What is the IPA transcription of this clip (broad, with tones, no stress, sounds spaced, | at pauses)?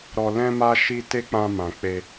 ɾ ɔ˨ l ɛ̃˧ m a˧ ʃ i˧ t e˦ k͡p ã˧ m ã˨ k͡p e˧